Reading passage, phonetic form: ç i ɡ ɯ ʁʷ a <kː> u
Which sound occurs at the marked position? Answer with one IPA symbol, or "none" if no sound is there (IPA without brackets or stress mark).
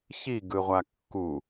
kː